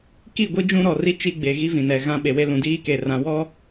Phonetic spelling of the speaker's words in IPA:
k i˦˨ ɡʷ i˦ d͡ʒ ũ˦ ɾ ɔ˨ r i˦ t͡ʃ i˦ ɡ͡b e˨ ɣ i˦ v ĩ˨ n ɛ˨ ɣ ã˦ ɓ e˨ w e˦ l ũ˨ d iː˦ k e˨ r ã˨ w ɔ˦

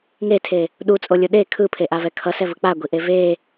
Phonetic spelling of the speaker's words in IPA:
ŋ e tʰ e | ɗ u t͡sʼ o lʲ o ɗ e kʰ ɯ pʰ e ʔ a v ɛ kʰ ʌ s ɛ v ɯ k͡p a ɡʷ i ʔ e v e

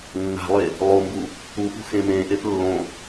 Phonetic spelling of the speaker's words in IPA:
nː a̤ lˠ e | lˠ o m b u | u p ṳ x ẽ m ẽ ʔ e p lː õ

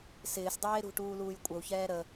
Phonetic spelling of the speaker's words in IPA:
s ɪː s dˤ eː ɾ ṳ ʈ uː l uː j kʷʼ ə u̯ ç ɛː ɾ ə

